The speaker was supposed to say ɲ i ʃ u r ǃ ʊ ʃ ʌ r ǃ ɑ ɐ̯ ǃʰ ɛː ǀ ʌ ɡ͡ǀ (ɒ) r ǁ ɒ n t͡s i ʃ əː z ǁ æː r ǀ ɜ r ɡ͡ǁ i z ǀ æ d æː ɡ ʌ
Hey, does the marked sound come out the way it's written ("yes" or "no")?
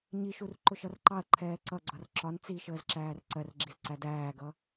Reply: no